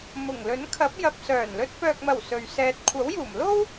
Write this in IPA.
m ʊ˨˩ ŋ l ɵ˨˥ n kʰ ɐ˨˥ p̚ j ɐ˨ p̚ s œː˨˩ n l ɵ˧ t̚ p œː˨ k̚ m ɐ˨˩ w s ɵ˨ ɥ s ɛː˧ t̚ kʷʰ ɐ˨˥ w j uː˨˩ m l o˥ w

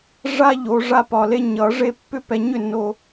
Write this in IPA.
ʐ a˦ ʎ o˨˦ ʐ a˦ p ɒ˨ l e˦ ɲ ʌ˨˩˦ ʐ e˦ pː ʏ˦ p ɛ˨ ɲ ʏ˥˩ nː o˨

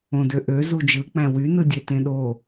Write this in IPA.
õ d ø ʔ ø z u d͡ʒ ɯ k͡p æ̃ w y n ɯ dʲ e t ẽ ɗ o

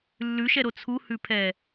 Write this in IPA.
lː ʉ ʃ ɛ ɾ o t͡sʰ u h ʉ pʰ ɛ

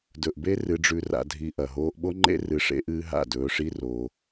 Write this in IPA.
d ɵ˨ ʔ b e˦ r ɨ˧ ɖ͡ʐ ʉ˧ r a̰˧ dʱ i˧ ʔ ɐ˨ ɦ oː˧ ʔ ɓ o˦ ŋ͡ǃ ḛ˦ r ɨ˧ ʂ ḛ˦ ʔ ɨː˦ ɦ a̰˦˨ d ɵː˧ ʂ i˦ r o˧

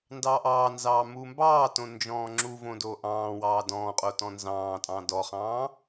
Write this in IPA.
n d ɑː ʔ ɑː n z ɑː m u m b ɑː t õ n d͡ʒ ɔ̃ː ŋ͡ǁ u v õ d o ʔ ɑ̃ː w ɑː d ɔ̃ː qʼ o t ɔ̃ n z ɑ̃ː tʼ ɑ̃ d ɔ χ ɑ̃ː

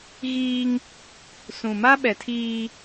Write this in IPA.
ɣ iː˦ ŋ | s ũ˨ m a˦ ɓ ɛ˨ tʰ iː˦

